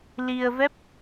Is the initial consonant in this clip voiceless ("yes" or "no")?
no